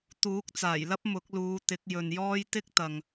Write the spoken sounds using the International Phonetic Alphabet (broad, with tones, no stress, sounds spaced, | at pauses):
t̪ uː˨˥ k̚ t͡s aː˨˩ j l ɐ˥ p̚ m ʊ˨˥ k̚ l uː˨˧ t̪ ɪ˨˥ k̚ j ɵ˨ n j ɔː˥ j t̪ ɪ˥ k̚ t̪ ɐ˨ ŋ